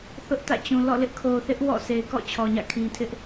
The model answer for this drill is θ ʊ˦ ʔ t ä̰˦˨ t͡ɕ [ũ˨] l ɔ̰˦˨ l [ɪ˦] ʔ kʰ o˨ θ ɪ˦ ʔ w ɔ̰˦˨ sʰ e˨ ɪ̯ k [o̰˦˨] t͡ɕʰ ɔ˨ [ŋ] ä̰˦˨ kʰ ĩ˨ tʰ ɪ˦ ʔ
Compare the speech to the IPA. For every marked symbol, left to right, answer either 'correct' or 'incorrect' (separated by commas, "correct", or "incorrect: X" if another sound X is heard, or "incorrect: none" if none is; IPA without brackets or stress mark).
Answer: correct, correct, incorrect: ɔ̰˦˨, incorrect: ɲ